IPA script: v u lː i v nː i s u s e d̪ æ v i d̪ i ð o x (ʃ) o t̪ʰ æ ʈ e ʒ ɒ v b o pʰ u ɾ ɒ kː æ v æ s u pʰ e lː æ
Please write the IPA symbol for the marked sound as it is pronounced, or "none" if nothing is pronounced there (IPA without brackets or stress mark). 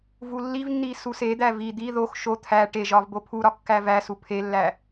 ʃ